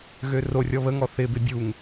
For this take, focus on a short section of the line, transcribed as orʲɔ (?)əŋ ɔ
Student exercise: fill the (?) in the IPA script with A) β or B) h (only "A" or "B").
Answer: A